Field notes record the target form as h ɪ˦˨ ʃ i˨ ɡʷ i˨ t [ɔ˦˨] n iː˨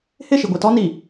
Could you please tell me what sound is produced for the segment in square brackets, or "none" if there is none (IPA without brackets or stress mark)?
ɔ˦